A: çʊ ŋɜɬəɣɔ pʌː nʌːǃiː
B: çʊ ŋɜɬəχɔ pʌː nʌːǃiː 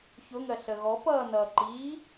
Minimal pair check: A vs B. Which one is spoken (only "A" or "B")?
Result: A